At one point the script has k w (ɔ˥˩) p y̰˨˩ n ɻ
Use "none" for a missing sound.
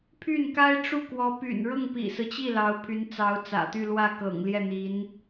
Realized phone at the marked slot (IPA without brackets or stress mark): ɔ˧˥